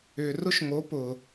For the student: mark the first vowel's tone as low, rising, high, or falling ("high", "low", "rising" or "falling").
low